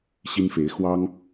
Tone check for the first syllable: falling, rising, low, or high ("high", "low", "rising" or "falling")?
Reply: high